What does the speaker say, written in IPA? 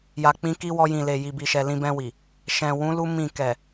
j a˨ k͡p ĩ˧ k i˦ w ɔ˧ j ĩ˨ l e˨ j i˨ b i˨ ʃ ɛ˨ l ĩ˧ b ɛ̃˧ w i˨ | ʃ ɛ̃˨ w ũ˨˦ l u˦ m ĩ˦˨ k ɛ˨

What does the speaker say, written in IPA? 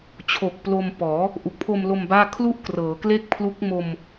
t͡ɕʰ o˨˩ k̚ p l o˧ m p ɔː˩˦ | ʔ u˨˩ k̚ pʰ o˧ m l o˧ m b aː˥˩ kʰ l u˥˩ ʔ k r ɤː˩˦ k l e˥˩ k̚ pʰ l u˦˥ k̚ m o˧ m

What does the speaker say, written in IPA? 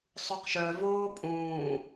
sˤ u q ʃ œ v oː pʼ ũː

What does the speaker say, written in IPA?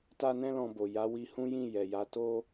t a˦ n ɛ̃˦ l ɔ̃˧ b o˨ j a˨˦ w i˧ h ũ˦ j ĩ˦˨ j ɛ˨ j a˨˦ t o˦

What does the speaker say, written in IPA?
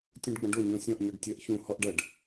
tʲ ũ ɖ ɡ͡b ɐ̃ ɖ o ɲ ɔ̃ sʲ ɔ̃ ʔ ɲ ɔ ɖ tʲ ɐ ʔ ç ũ h ɔ ʔ ɖ ɐ ɖ

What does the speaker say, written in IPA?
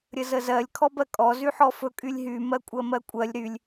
ɾʲ ə z ə z ɜ lʲ kʰ ɔ b ɜ kʼ ɔ z y ħ ɔ f ɵ kʼ y lʲ ɦ y m ɜ kʷʼ ɜ m ɜ kʷʼ ɜ lʲ ɾ y lʲ

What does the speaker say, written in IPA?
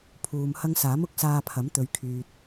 pʰ uː˨ m h ɐ˧ ŋ s aː˨˥ m ʊ˨˥ k̚ s aː˧ pʰ ɐ˨˥ m t̪ ɵ˨˧ ɥ kʰ yː˧ t̚

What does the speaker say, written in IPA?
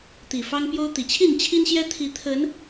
t̪ i˨˩ f ɑ˦ ŋ p j o˦ ʊ̯ t̪ i˨˩ t͡ɕʰ i˥˨ n t͡ɕʰ i˦ n ɕ j ɛ˦ t̪ʰ i˨˦ t̪ʰ ə˨˦ n

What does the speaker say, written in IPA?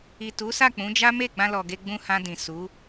i˨ t u˨˦ s a˦˨ k͡p ũ˨˦ d͡ʒ a˦ m e˦˨ ɡ͡b ã˧ l ɔ˨ ɡ e˧ ɡ͡b ũ˧ h ã˧ d ĩ˨ s u˨˦

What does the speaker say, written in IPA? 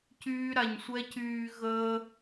c yː˥ ɾ a˧ ɲ sʷ ɛ˥ c yː˧ ɣ əː˥

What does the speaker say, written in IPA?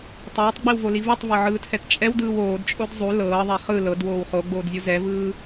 tˤ ɤː tˤ ɡ͡b i w v o l i v ɯ tˤ v ɤ ʕ ɯː tʰ ɛ t t͡ʃʼ ɛ w d ɯː w oː d t͡ʃʼ o d zˤ u l ɤː ðˤ ɛ χ ɯ l ɤ d w oː w χ o ɡ͡b oː d zʲ u z ɛ v ɯː

